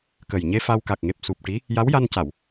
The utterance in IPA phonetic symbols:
kə˨˩jɲe˧fa˧w ka˨˩k̚ŋe˨˩p̚su˨˩p̚ ʈi˧˥ | ja˧˥wja˧nca˨˩˨w

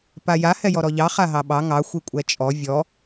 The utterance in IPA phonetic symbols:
paja hɛjɔɾɔʎɑ χaɦɑɓɑ ŋɑ xʷikʷʼɛt͡ʃʼɔ vʲɔ

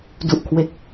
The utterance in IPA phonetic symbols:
du˨˩ʔkʰwe˨˩k̚

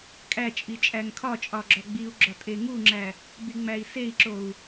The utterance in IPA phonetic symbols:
kʼæt͡ʃʼi t͡ʃʼæŋkʰɒt͡ʃʼɒ ɡ͡ǁɒɡ͡biu̯ɡ͡ǁɒ tʼeŋuŋ͡ǁæ | biŋ͡mæi̯sei̯ǁou̯

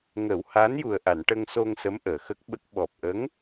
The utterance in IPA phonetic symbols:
ŋə˨˩˦whaː˧˥nju˨˩ə̯ʔa˨˩˨n ʈə˧ŋso˧ŋsə˧˥m ʔəː˨˩xə˦˥k̚ɓə˦˥k̚ ɓɔ˨˩p̚ʔə˧˥ŋ

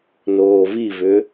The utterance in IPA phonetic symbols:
noːvivʏ

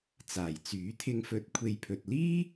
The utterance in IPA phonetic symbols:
t͡saː˨˩jt͡syː˨˥t̪ʰɪ˧ŋ fɵ˨˥t̚ kʷʰe˨jpʰɵ˨t̚liː˥

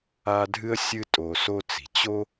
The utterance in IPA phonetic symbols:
a˦dʱɨ˥ə̯sʲɨ˦ tʼo˨so˦t͡si̤˩ t͡ɕo˥

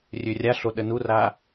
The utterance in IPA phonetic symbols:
rʲørʲaɬo ɗənura

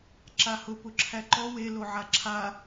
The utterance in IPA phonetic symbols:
ǁahʊ pʊǁʰæǃɔ we loʕaǁʰa

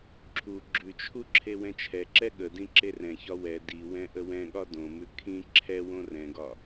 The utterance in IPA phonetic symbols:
ǁʰu ɡ͡ǁʉt͡ʃʰu ǁʰewɛ̃t͡ʃʰɛǁɛ ɠə dĩǁerɛ̃çɒ wɛ diwɛ̃ ʔəwɛ̃ɠɒ dõmʉ kʰĩ ǁʰɛwõ rɛ̃ɡɒ

